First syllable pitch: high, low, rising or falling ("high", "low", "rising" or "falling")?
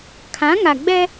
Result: rising